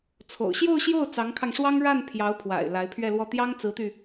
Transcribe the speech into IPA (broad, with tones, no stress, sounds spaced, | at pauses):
t͡sʰ o̰˨˩ ʊ̯ ɕ j o˥˧ ʊ̯ ɕ j o˥˩ ʊ̯ t͡s ɑ˧˥ ŋ kʰ ɑ˧ ŋ ʂ w ɑ˥ ŋ ɻ a˥˩ n pʰ j ɑ˧˥ ʊ̯ pʰ w a̰˨˩ ɪ̯ l a˧˥ ɪ̯ pʰ ɥ ɛ˥˧ l w ɔ˥˩ t̪ j ɑ˥ ŋ t͡s ɹ̩˧˥ t̪ y˧